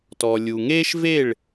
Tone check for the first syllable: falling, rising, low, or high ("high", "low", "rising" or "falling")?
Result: low